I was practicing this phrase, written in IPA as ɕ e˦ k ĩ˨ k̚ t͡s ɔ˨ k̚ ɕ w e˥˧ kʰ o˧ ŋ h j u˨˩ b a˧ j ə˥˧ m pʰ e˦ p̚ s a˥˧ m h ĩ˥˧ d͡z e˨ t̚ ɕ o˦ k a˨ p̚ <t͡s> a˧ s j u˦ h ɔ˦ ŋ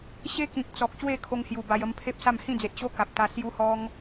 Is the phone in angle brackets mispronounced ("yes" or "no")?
yes